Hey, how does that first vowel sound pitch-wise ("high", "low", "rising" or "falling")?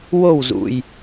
falling